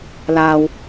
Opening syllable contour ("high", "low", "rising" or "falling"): low